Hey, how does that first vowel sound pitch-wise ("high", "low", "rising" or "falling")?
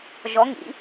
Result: rising